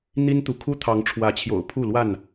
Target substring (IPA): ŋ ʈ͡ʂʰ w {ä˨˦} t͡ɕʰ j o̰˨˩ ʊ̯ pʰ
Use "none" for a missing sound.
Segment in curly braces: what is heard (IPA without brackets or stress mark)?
ä˨˦